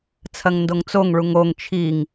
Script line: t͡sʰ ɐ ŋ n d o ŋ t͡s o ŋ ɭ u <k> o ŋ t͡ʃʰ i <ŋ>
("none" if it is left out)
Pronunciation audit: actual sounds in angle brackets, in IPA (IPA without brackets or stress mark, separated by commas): ŋ, ŋ